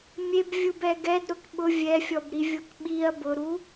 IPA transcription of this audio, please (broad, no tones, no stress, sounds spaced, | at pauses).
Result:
mʲ e b vʲ u b ɛ ɡ ɛ d ɾ ʊ k ɓ ʊ vʲ ɛ fʲ ɔ b ɾ i vʲ o k ɓ i ɐ̯ b ʊ ɾ u